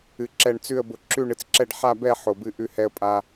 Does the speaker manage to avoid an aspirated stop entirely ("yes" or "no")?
yes